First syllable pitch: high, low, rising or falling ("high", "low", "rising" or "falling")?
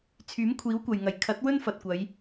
rising